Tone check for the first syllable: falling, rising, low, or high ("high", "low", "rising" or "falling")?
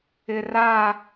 low